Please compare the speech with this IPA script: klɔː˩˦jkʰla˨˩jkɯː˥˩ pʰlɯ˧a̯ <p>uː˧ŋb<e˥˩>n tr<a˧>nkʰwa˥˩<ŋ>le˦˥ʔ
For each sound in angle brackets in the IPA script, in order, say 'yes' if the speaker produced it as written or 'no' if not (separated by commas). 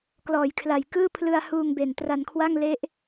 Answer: no, no, yes, yes